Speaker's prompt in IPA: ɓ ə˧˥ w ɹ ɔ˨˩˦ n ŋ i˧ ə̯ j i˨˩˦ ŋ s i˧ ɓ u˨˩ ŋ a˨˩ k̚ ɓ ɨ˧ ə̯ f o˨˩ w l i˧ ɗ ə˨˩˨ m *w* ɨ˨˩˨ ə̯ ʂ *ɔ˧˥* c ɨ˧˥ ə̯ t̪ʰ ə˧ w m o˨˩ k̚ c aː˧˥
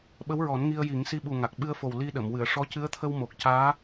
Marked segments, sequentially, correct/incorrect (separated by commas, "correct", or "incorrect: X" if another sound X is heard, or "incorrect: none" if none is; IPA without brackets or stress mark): correct, correct